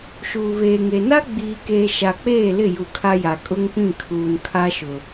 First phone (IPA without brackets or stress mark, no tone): ʃ